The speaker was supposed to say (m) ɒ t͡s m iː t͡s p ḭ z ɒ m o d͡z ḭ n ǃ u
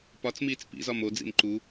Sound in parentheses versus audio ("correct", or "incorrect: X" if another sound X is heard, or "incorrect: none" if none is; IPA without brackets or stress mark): incorrect: p